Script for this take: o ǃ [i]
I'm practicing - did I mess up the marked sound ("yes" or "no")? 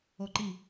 no